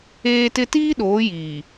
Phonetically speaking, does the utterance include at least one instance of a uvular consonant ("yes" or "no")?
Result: no